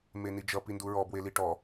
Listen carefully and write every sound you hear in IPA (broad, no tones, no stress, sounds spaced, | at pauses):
m e n i d͡ʒ ʌ p i n d u ɹ ɔ b w e l i ʈ ɔ